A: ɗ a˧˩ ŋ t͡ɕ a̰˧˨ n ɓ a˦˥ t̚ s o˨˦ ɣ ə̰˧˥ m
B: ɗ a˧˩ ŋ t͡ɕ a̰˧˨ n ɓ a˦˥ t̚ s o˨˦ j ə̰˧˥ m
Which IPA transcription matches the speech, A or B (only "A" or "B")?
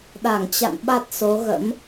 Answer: A